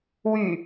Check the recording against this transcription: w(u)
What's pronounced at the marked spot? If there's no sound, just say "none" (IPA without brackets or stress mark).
y